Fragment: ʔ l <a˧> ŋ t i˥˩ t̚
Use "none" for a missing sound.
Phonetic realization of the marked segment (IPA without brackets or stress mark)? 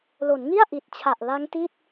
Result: a˦˥